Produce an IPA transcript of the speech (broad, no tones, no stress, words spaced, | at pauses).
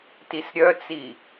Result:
tisɾʲœt͡si